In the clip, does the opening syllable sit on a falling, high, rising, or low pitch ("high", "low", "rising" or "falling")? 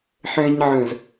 high